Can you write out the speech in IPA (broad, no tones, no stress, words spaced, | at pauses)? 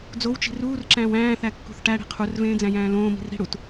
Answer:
d͡zowt͡ʃi̤ ruːrǁæ̃ːw æ̃ːθækːṳθ ʈæɽi̤ qʰurvẽːd͡zæ̃jæ̃ː lõːmi̤r ɾi̤ɽut